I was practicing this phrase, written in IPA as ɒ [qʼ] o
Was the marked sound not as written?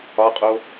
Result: no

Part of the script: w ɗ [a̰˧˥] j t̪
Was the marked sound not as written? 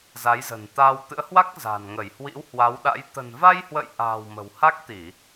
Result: no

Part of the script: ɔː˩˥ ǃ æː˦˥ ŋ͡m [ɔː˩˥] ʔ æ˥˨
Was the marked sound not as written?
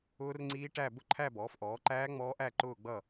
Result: yes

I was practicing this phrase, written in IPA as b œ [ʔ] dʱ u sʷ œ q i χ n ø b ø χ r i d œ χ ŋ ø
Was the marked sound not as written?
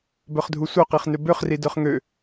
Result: yes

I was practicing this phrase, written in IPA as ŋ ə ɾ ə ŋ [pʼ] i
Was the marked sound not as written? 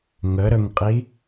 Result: yes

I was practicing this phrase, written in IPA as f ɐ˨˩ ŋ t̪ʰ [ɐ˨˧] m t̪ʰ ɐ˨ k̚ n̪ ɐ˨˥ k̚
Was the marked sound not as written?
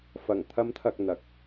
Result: no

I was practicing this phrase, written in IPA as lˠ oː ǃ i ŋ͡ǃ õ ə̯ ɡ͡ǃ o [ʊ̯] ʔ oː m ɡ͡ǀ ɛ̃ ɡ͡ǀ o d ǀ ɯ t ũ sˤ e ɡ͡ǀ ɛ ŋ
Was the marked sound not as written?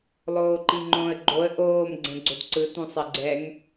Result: yes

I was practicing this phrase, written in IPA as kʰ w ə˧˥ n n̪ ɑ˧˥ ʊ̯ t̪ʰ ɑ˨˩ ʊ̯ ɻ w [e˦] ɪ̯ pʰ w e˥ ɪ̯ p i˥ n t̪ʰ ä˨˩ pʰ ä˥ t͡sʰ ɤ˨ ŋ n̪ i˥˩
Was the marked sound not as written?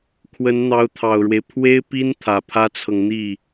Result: no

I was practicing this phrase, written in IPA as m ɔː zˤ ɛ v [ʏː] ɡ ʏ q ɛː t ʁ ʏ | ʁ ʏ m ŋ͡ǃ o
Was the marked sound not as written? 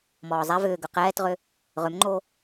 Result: no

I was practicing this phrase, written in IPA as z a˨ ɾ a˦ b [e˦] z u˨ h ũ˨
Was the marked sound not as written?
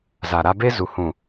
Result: no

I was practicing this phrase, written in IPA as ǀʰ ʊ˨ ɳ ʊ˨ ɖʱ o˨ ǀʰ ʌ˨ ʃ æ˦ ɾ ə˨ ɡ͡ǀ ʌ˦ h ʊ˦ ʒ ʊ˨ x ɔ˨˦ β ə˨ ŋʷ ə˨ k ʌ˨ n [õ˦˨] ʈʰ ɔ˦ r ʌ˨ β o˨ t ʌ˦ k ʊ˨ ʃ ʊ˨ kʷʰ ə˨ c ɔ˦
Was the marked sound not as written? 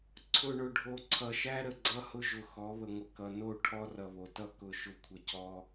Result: yes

